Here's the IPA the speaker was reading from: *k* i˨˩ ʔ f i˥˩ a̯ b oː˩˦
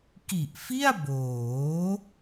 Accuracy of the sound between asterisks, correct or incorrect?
correct